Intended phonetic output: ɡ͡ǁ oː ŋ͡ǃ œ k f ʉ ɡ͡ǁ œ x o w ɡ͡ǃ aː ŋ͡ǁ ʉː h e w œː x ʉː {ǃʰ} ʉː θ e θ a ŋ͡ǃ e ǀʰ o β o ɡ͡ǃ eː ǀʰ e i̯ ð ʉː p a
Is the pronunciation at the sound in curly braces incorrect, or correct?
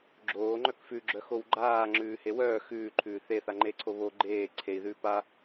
correct